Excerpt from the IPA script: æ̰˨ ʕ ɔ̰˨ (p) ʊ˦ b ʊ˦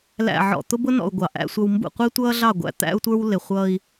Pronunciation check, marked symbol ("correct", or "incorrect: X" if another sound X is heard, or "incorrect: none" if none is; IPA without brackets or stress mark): incorrect: t̪